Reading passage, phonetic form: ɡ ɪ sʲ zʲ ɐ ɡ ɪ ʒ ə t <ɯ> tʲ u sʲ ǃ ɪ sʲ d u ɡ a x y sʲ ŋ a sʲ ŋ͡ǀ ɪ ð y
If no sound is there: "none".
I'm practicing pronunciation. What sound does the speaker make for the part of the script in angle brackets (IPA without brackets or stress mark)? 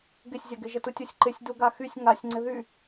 u